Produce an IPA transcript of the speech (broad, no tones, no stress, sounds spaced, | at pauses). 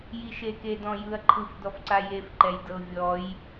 j i ʃ e k e d ɔ̃ j ɯ ɐ̯ ǃʰ ɯ f d ɔ f ǀ a j e f ǃ ɛ j d ɤ vʲ ɔ j